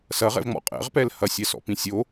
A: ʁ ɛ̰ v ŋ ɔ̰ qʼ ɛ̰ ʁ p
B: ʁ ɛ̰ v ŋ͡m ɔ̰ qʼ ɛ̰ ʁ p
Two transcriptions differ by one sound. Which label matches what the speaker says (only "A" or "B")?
B